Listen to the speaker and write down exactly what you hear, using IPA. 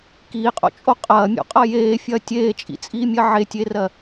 k iː qʼ o̰ t͡ʃʼ o qʼ ɐː mʲ o̰ qʼ ɐ j eː fʲ ɐː tʲ eː t͡ʃʼ ḭ t͡sʼ iː mʲ ɜ ʕ e tʲ e r ɜ

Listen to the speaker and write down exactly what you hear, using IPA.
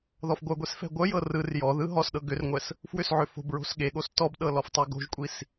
ð ɔ f ɡʷ œ ɡʷ e s f ɛ̤ ɡʷ œ j ɤ r ɯ r j ɔ ð ɯ ɦ ɔ s ɗ ɤ ɡ ʏ r ŋʷ ɛ s | f w ʏ s ʕ ʏ f o̤ b ɹ o̤ s ɠ e ɠ o s t ɔ b ɗ ɤ l ɔ f tˤ e ɡ o̤ ʒ kʷʼ i s

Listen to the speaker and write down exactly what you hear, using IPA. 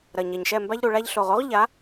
ɾ ɐ˨ ɲ ɛ˨ ɲ ʃ ɛ˦˨ m b a˦ ʎ ɾ u˨ ɭ a˧ ʎ ɬ o˨ ʁ o˦ ʁ ʎ a˨˦

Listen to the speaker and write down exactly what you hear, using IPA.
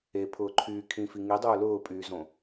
e pʰ ʊː ǃʰ yː kʰ ĩ f i ŋ i dˤ ʊː l ʊː pʼ yː z õ

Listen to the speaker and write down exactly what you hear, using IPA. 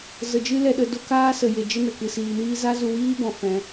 z ə˧ d͡ʒ ɨ˦ l ɛ˧ ɗ ə˧ d o˦ k aː˦ s ə˧ j e˧ d͡ʒ ə˦ n ə˨ k ɨ˧ s iː˧ n iː˦ z a˦ z u˧ w iː˦ b ɔ̃˨ f ɛ̃˧

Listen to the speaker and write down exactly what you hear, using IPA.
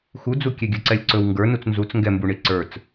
x u d͡z u kʲ ɛ ɡʲ ɵ ǀ ɛ lʲ ǀ ɵ w ŋ ɡ ə˞ n u t͡s n z u t͡s ŋ ɡ ɛ m b u ɳ i ǀ ə˞ t͡s

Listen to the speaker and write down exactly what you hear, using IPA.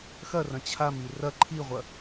x ɐ r ɐ̃ t͡ɕʰ a m i r ɐ ǃʰ i ʁʷ ɐ

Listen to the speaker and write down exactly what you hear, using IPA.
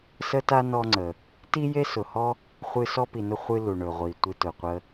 s ə˥ t a˥ n ɔ˦ ŋ͡ǀ ə˩ | t i˥ j e˥ s ʊ˨ h ɔ˥ | χʷ ɨ˦ s ɔ˥ p i˨ n ʊ˥ χʷ ɨ˦ l u˩ ɳ ɵ˩ ʁʷ i˩ tʷ ɨ˦ t ʊ˨ qʷ ə˥

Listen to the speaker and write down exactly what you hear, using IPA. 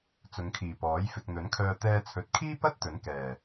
t͡s ʊ˨˧ ŋ kʰ iː˨˩ p ɔː˨˥ j f ɪ˨ k̚ n̪ ɵ˨˥ n kʰ œː˧ t̪ ɛː˧ t͡sʰ ɵ˨˥ t̚ kʰ iː˥ p ɐ˥ t̚ t̪ ɵ˨˥ n k ɛː˨˩

